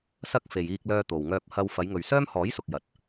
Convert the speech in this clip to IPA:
s ɐ˧ k̚ f e˨ j iː˧ k̚ l œː˧ t̪ o˨ w ŋ œː˧ p̚ h ɐ˧ w f ɐ˨˧ j ŋ ɵ˨ ɥ s œː˥ m h ɔː˨˥ j s ʊ˨ k̚ j ɐ˨˥ t̚

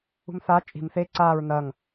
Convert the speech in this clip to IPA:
ṳ m θ aː t͡ʃʼ i̤ m θ e ǀ aː ɹ n ɐ ŋ

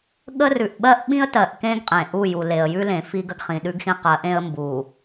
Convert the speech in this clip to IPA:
ɠ ə˦ r ʉ˨ ʔ ɓ ɜ˦ ʔ ɓ ĩ˦ ə̯ t ɜ˨ ʔ k ẽ˦ ɡ qʼ ẽ˨ ʔ u˦˨ j u˨ l e˨ ə̯ j ʉ˦ l ẽ˨ f i˦ ɡ ə˦ ɡ χ ĩ˨ ɗ ʉ˦ ɡ x ĩ˦ q ɜ˨˦ ʔ ẽ˦ ə̯ m b u˨

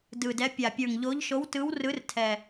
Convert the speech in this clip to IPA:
d ɯ˨˩ d ɛ˨˦ pʲ a˨˩ pʲ ə˞˨˩ ŋ ʎ o˨˦ ʎ ʃ o˨˦ w t ɯ˨˦ w r ɯ˨˦ r tʰ ɛ˨˩

